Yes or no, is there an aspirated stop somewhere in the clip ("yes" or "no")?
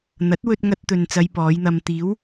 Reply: no